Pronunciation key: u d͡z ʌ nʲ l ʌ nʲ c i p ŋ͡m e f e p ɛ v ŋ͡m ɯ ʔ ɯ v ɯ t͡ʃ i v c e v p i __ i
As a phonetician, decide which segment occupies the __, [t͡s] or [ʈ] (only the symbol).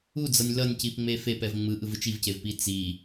t͡s